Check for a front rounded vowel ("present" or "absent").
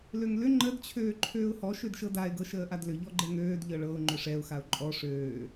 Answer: present